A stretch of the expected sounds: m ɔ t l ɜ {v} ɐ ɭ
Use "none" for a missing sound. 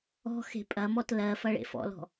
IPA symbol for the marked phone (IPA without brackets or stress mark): f